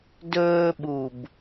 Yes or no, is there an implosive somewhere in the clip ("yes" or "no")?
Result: yes